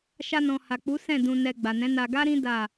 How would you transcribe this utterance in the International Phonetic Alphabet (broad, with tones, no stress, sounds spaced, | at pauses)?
ʃ a˧ n ɔ̃˨ h a˨ k͡p u˨˦ s ɛ̃˦˨ d ũ˧ n ɛ˧ ɡ͡b a˨ n ɛ̃˨˦ n a˧ ɡ a˦ ɾ ĩ˦ d a˦˨